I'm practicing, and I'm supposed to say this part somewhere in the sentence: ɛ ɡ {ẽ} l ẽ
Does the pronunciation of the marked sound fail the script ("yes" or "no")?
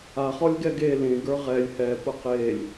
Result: yes